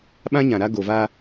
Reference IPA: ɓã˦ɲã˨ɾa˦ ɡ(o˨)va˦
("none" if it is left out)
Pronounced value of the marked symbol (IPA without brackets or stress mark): o˨